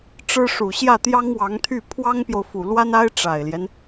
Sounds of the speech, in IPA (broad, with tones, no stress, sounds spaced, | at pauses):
ʈ͡ʂ ɻ̩˥ ʂ u˨˩ ɕ j ä˥˩ t̪ j ɑ˥ ŋ w ɑ˧˥ ŋ t̪ʰ y˥˩ pʰ w ɑ˥ ŋ p j o˨ ʊ̯ f u˨˩ l w a˥ n a˥ ɪ̯ ʈ͡ʂ a˨˩ ɪ̯ l j ɛ˦ n